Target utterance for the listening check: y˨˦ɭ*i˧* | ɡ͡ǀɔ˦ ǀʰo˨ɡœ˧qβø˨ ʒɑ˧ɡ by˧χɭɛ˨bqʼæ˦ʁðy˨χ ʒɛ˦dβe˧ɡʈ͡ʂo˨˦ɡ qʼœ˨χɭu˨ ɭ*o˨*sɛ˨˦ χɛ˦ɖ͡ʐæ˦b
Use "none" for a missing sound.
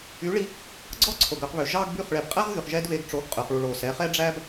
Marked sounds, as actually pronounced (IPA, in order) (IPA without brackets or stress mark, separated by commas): i˧, o˨